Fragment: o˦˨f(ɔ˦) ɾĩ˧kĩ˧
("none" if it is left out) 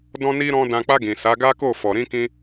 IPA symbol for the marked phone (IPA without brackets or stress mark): ɔ˨